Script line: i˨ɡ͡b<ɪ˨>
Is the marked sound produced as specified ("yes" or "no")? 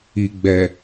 no